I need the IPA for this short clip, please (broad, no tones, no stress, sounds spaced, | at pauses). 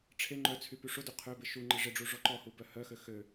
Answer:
ʈ͡ʂʰ e ŋ͡ǃ œ t͡sʰ y p y ʂ ʊ d ø qʰ ø b ɪ ʃ u ŋ͡ǃ ɪ ʐ ɪ ɖ͡ʐ u ʐ ɔ ǃ ɔ h u b œ h œ x ø x ø